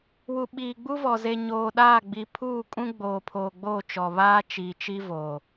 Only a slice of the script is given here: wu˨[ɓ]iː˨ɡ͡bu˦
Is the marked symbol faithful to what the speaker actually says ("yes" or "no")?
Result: yes